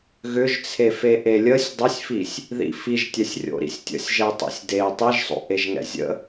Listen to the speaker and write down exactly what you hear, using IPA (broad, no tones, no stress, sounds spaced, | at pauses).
ɣ ʏ ʒ t͡sʰ e f e ʔ e lʲ ə sʲ dˤ ʏ sʲ f i sʲ | ð ḭ f i ʒ tʲ ɛ sʲ rʲ o̰ ɾ ḭ sʲ tʲ ə̰ sʲ ʒ ɛ tˤ ḭ sʲ d e tˤ i ʒ sˤ o̰ ʔ e ʒ ŋ ɛ̰ zʲ ə̰